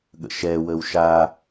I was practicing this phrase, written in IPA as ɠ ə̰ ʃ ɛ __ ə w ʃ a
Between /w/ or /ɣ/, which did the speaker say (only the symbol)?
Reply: w